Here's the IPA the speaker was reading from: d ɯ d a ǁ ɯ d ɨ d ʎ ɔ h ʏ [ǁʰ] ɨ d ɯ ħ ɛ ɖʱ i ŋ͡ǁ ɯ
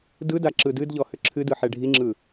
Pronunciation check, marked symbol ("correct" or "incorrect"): correct